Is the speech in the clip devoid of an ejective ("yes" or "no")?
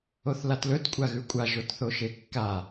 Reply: no